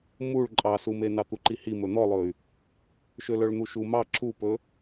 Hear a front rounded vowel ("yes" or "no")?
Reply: yes